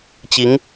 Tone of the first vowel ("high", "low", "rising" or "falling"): rising